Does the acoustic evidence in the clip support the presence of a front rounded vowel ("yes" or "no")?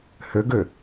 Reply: yes